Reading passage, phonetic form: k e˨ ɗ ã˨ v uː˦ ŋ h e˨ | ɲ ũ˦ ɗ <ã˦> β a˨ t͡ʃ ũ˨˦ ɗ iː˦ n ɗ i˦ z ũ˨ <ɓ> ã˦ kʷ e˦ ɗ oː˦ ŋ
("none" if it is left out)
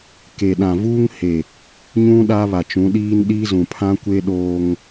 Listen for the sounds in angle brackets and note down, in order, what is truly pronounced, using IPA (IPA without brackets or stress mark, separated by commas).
a˦, pʰ